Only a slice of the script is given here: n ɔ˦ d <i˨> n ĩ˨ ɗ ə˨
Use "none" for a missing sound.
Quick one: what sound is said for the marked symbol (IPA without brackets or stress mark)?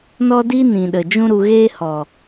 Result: i˦